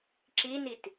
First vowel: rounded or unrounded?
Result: unrounded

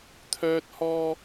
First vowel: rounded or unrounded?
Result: rounded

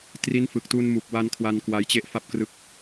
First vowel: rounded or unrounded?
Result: unrounded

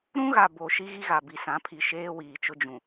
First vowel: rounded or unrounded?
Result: rounded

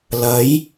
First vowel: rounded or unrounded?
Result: unrounded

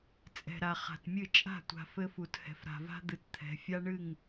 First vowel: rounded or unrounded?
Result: unrounded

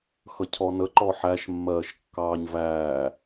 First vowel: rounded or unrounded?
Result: unrounded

